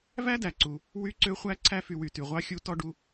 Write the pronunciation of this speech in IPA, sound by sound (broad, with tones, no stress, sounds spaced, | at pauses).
v æ˥ d æ˩ ǀ u˩ | w y˦ ǀ ø˦ χʷ æ˥ ǀʰ æ˦ f y˨ w y˩ t y˩ ʁʷ ɑ˦ xʲ u˦ t ɔ˥ ɖ u˦